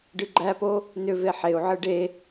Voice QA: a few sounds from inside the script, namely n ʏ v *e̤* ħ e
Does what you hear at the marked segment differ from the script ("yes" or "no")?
yes